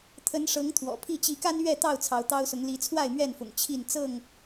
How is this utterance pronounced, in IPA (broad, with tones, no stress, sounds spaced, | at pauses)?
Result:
t̪ʰ ə˨˦ n ʂ ɤ˨˦ ŋ t̪ʰ w ɔ̰˨˩ pʰ i˥˨ t͡ɕ i˨˦ k a˦ n ɥ ɛ˥˨ t̪ ɑ˥˨ ʊ̯ t͡sʰ ɑ˨˦ ʊ̯ t̪ ɑ˦ ʊ̯ s ʊ˨˦ ŋ l i˨˦ t͡sʰ w a˥˨ ɪ̯ m ɥ ɛ˥˨ n f ʊ̰˨˩ ŋ t͡ɕʰ i˥˨ n t͡s ɤ˥˨ ŋ